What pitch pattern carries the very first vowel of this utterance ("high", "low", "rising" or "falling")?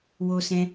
high